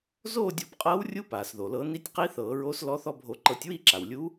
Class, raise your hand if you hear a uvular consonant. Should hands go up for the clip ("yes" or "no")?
yes